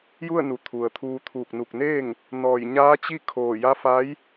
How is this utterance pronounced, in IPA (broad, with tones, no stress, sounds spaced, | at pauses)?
j u˥˨ ə̯ n u˩ t̪ʰ u˩ ə̯ t̪ʰ uː˧ t̪ʰ uː˧˩ k̚ n u˧˩ k̚ n eː˥˨ ŋ | n ɔː˧˩ j ɲ aː˧˥ t͡ɕ i˥˨ kʰ oː˧˩ j a˧˥ f a˧˥ j